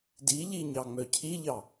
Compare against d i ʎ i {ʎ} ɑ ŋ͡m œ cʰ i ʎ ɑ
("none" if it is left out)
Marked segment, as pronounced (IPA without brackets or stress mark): ɲ